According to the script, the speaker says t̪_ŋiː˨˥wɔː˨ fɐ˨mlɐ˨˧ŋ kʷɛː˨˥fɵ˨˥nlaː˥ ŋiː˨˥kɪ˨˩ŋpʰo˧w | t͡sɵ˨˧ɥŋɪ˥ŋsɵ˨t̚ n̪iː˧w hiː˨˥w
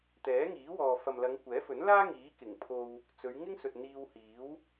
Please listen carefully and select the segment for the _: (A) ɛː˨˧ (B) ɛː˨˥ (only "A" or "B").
B